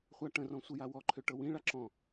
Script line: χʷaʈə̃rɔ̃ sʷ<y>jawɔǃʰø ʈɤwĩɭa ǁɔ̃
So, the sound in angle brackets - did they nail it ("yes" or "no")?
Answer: no